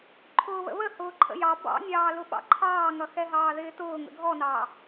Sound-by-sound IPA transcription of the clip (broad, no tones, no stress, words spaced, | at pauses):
ǃʰʊːβə̰βə hʊːǃʰə̰jɑ bɑ̰nʲɑːlʊ ɓɑ̰ǃʰɑːŋʌ xɛɦɑːðɪːtʊː ŋə̰ɡʱɔnɑː